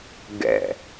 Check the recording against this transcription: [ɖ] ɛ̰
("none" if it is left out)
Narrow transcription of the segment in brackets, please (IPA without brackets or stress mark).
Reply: ɡ